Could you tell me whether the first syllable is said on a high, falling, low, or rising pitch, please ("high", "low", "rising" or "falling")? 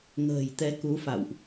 low